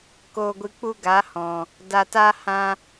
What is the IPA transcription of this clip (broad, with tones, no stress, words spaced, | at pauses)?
koː˧ɡʷɨ˧k͡pu˦ ɡa˨˦hɔ̃˨ | da˧taː˦ hã˧